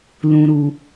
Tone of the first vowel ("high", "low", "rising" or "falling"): low